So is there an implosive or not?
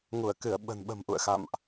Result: yes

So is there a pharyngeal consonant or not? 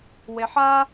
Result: yes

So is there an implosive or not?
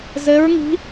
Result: no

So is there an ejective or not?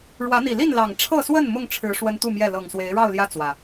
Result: no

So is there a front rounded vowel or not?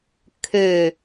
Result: yes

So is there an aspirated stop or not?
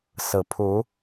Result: yes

